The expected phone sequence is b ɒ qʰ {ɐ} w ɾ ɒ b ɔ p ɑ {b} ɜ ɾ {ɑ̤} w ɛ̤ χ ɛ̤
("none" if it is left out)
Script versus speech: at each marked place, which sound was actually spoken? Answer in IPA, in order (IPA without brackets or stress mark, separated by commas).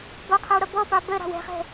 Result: æ, b, ɑ̤